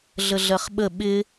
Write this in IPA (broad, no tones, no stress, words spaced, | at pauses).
ɮəɮɜχɓə ɓɪ